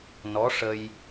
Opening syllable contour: rising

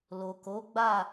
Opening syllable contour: low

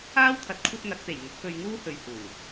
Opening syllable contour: high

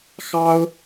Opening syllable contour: high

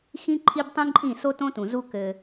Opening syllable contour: high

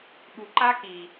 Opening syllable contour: low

